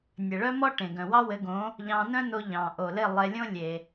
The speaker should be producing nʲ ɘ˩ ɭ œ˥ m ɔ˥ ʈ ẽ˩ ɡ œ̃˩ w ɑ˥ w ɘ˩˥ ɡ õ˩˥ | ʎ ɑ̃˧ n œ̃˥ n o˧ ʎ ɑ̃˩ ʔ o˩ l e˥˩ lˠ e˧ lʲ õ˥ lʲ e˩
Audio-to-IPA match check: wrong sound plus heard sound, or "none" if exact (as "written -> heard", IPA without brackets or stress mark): none